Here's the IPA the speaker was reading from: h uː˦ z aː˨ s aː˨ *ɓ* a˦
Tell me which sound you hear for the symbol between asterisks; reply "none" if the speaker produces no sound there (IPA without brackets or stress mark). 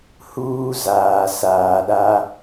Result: ɗ